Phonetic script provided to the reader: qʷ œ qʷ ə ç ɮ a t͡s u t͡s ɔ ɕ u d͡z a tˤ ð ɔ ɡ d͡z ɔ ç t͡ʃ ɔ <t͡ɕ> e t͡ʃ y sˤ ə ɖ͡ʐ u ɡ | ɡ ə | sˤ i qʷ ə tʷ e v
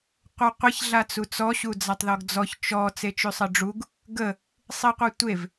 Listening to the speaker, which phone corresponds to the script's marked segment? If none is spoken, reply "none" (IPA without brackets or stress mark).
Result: t͡s